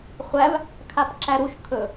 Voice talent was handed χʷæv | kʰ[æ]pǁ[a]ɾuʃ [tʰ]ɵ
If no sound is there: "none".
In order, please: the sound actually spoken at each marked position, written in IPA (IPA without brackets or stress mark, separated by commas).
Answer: a, æ, kʰ